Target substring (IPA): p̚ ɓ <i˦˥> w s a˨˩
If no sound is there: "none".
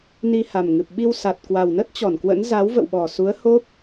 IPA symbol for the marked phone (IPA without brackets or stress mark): i˧